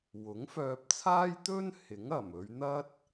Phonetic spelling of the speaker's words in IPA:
w ʊ˨˥ ŋ f œː˧ p̚ t͡sʰ aː˥ j t̪ ɵ˥ n h ɪ˨˥ ŋ ɐ˨˩ m ɵ˨˧ ɥ n̪ ɐ˥ t̚

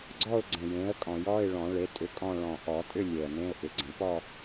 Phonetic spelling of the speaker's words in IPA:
ɡ͡ǀ ɔ˥˧ ʊ̯ ɡ͡ǀ ə̃˨˩ j ẽ˩˥ ə̯ kʼ ɔ̃˨˩˦ j ɔ˧˥˧ ɪ̯ ɭ ɔ̃˨˩˦ ɭ e˩˥ tʼ ʏ˩˥ kʼ ɔ̃˥˧ ɭ ɔ̃˨˩ ʔ ɔ˨˩˦ tʼ ʏ˥˧ lʲ e˨˩ ə̯ n ẽ˧˥˧ ʊ̯ ʔ ʏ˩˥ ɡ͡ǀ ə̃˨˩˦ p ɔ˥˧

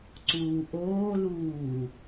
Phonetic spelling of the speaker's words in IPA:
ǀ uː ʔ oː l uː

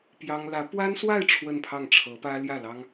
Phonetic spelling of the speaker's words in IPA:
p j ɑ˥ ŋ l ä˧˥ p w a˥ n s w a˥˧ ɪ̯ ʈ͡ʂʰ w ə˥˧ n pʰ ɑ˥˩ ŋ ʈ͡ʂʰ ɤ˧˥ p ä˥ l j ä˥˩ l ɑ˥ ŋ

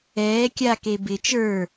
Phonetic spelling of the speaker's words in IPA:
ɛː kʲ a k e b ɪ t͡ʃ ə˞

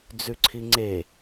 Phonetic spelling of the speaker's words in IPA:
d͡z ʉ ǀʰ i ŋ͡ǀ e

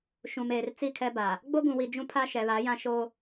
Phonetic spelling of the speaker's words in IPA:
ʃ ũ˨ m eː˨ r t͡s i˦˨ kʰ ɛ˦ b a˨ | ɡ͡b o˦ ɡ ũ˨ w i˨ d͡ʒ ũ˦ pʰ a˦ ʃ ɛ˨ β a˨˦ j ã˦ ʃ o˦

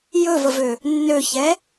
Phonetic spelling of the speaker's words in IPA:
j ɵ v ə v ø | nː ø ç ɛ

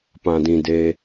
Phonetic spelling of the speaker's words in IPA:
p ã˨ d ĩ˨ d e˧

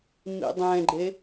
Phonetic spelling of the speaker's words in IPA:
m ḭ dˤ ɛ̃ ɡ͡ǃ e

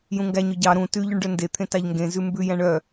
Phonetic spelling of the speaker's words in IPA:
j ũ ŋ ɡ æ ɲ ɵ ɟ ɑ ɾ ũ t ʉ ʎ ʉ ɳ ɖ œ n d e t̪ʰ ẽ t ɑ ʎ ŋ ɡ ẽ z ʉ m b ʉ j æ̃ ɳ œ

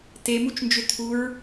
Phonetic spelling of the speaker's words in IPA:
t e m u t͡ʃ n d͡ʒ ʏ tʰ u ɹ

